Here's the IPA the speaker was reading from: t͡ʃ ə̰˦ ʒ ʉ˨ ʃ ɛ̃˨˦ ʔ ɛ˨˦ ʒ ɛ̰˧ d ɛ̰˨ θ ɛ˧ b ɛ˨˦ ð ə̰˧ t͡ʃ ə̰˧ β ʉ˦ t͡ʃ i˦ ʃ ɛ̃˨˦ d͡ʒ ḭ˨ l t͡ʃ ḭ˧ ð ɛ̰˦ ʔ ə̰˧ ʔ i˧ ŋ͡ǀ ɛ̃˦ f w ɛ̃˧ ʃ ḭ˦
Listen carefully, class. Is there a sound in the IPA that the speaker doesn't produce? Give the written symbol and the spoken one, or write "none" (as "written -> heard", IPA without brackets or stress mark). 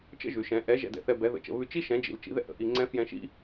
w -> j